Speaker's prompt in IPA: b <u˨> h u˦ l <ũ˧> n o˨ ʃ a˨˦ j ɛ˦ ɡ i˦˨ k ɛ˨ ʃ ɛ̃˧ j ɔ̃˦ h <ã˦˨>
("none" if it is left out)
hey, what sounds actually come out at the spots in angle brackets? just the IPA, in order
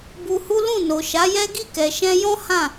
u˧, ũ˦˨, ã˦˨

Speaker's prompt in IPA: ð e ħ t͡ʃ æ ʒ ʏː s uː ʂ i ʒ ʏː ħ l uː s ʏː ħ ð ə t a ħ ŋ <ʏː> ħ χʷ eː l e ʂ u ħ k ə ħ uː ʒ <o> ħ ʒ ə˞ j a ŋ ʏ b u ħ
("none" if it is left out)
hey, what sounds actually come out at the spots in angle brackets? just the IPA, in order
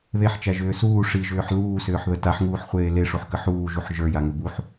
uː, u

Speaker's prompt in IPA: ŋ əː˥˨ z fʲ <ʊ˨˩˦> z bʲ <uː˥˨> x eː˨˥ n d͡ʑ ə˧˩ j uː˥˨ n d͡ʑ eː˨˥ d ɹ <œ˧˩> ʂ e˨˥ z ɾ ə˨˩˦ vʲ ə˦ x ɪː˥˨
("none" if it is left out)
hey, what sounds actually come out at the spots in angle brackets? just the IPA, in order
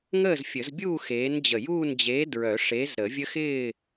ə˨˩˦, uː˥˨, œ˨˩˦

